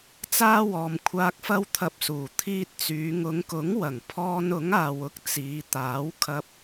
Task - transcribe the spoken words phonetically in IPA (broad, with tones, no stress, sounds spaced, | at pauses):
t͡s aː˥ w ɔː˨ m kʷʰ aː˧ k̚ f ɐ˥ w t̪ʰ ɐ˧ p̚ s uː˨˩ t̪ʰ iː˧ t̚ t͡s yː˨˧ ŋ ʊ˨˧ ŋ k ʊ˨˥ ŋ w ɐ˨˩ ŋ pʰ ɔː˧ n ʊ˨˥ ŋ aː˨ w ʊ˥ k̚ t͡s iː˨˧ t̪ aː˨˥ w kʰ ɐ˧ p̚